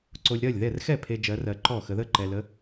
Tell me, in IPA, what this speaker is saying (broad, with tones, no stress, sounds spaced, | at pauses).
ǀ o˨ lʲ ɾ ɜ˥˩ lʲ ð ɛ˥˩ r x ɛ˥˩ pʰ e˨ d͡ʒ ɜ˨˦ r ɜ˨ ǃ ɔ˥˩ x ə˨ ð ə˥˩ ǃ ɛ˨ l ə˨˦